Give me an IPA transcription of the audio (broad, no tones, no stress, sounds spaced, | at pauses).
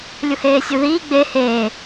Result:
lʲ u h eː sʲ u ð iː ɡ͡b e h eː